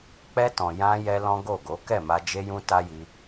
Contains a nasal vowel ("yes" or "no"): yes